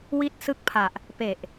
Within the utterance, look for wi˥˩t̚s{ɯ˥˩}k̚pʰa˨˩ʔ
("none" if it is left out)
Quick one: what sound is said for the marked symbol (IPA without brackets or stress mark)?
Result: ɯ˥˩